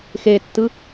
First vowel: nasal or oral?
oral